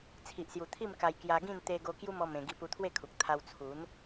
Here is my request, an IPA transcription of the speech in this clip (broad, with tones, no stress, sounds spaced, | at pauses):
t͡sʰ i˨ ʔ s j u˨˩ t̪ʰ i˥˧ m k a˧ j k j a˧ ɡ ĩ˥˧ n t̪ e˦ ɡ o˦ k j u˦ m ɔ˧ m ẽ˧ ɡ i˧ p u˧ t̪ʰ w e˥˧ kʰ u˨ k̚ t̪ʰ a˧ w t͡sʰ u˨˦ n